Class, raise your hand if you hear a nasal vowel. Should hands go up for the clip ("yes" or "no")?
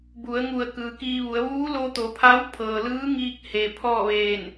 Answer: no